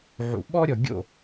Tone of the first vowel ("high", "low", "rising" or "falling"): low